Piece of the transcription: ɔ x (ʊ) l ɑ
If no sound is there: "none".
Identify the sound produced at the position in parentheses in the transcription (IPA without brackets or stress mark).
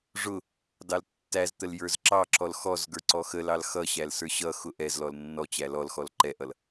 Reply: ə